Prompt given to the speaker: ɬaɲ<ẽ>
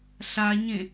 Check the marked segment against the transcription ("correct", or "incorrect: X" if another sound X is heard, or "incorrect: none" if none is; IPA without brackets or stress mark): correct